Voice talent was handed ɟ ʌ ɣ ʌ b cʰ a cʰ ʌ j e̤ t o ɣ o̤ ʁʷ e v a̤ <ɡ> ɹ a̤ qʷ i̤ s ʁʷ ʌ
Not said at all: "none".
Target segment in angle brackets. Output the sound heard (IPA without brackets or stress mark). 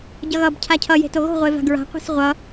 ɡ